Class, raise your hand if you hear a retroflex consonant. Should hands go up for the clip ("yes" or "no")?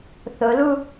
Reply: no